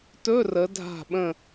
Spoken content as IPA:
t ɵ˧˥˧ r ə˩˧ dʱ a̤˧˩ ɓ ə̃˧˩

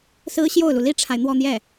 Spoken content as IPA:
s ɹ̩˥ ɕ j o˥˩ ʊ̯ l u˩ l i˥ ʈ͡ʂʰ a˨ ɪ̯ n̪ w ɔ˥˧ n̪ j ɛ˥˩

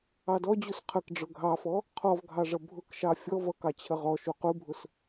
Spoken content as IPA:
ɑ d ɔ d͡ʑ u s qʰ ə k ɖ͡ʐ ʊ ɡʱ ɑ f ɔ | qʰ ɔ v ɡʱ ɑ ʐ ʌ bʱ ʊ k ʃ ɑ fʲ ɔ v ʌ k ɑ t͡ɕʰ ə ʁ ɔ ʃ u q u bʱ ʊ s

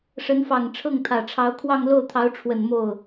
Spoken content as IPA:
ʂ ə˧˥ n f ɑ˨˩ ŋ ʈ͡ʂʰ ɤ˥˩ ŋ t̪ʰ ä˨˩ ʈ͡ʂʰ ɑ˧˥ ʊ̯ kʰ w ɑ˥˧ ŋ l o˥˩ ʊ̯ t̪ʰ ɑ˧˥ ʊ̯ ʈ͡ʂʰ w ə˨˩ n m o˥˩ ʊ̯

